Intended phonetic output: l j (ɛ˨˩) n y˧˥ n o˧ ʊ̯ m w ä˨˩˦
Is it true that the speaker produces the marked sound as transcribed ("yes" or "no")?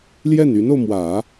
no